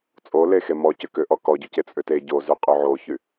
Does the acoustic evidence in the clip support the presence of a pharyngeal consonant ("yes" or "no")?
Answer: yes